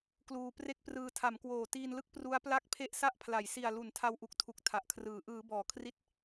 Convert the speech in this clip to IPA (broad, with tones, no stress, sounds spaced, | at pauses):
k l uː˧ p r e˥˩ k̚ p r ɯː˧ tʰ a˩˦ m k w oː˨˩ t iː˧ n l ɯ˥˩ k̚ p r u˦˥ a̯ p l a˥˩ k̚ pʰ e˥˩ ʔ s a˦˥ ʔ pʰ l a˩˦ j s i˨˩ a̯ l u˩˦ n tʰ a˧ w ʔ u˨˩ k̚ tʰ u˨˩ k̚ tʰ a˨˩ ʔ kʰ r ɯː˩˦ ʔ ɯː˩˦ b ɔː˩˦ kʰ r i˦˥ t̚